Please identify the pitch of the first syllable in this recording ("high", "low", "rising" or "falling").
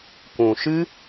low